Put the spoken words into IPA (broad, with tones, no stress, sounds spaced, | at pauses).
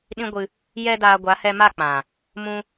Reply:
ɗ ĩ˦ ɡʷ ɨ˧ | j ɛ˦ d aː˧ ɡʷ a˨˦ h ɛ˧ m a˦˨ k͡p ã˨ | m ũ˦